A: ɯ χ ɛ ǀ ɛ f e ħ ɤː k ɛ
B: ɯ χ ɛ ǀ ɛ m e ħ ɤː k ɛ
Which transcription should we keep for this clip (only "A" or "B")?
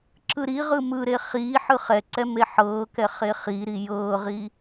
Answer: B